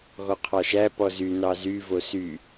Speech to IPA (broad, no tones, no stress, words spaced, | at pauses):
ɣɔqʰɑʃæ pɔzy nɑzy vosy